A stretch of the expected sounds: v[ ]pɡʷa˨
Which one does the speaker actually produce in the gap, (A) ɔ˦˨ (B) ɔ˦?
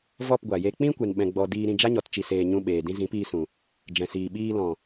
A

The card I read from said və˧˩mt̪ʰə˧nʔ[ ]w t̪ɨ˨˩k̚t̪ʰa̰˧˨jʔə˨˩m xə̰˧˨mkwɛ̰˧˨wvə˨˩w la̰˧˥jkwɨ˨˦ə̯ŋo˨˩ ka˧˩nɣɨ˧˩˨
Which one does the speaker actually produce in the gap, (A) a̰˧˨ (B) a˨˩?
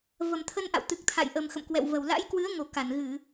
A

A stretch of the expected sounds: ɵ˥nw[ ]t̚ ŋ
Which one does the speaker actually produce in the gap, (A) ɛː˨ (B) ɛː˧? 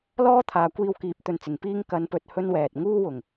A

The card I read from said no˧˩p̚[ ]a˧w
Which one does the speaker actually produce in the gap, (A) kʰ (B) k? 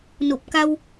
B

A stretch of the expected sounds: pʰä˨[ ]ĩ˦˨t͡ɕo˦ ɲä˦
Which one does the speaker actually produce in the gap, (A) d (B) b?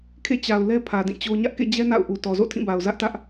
A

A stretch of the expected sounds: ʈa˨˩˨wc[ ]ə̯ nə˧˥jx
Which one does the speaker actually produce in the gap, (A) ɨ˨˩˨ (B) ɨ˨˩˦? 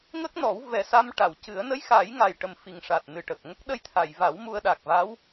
B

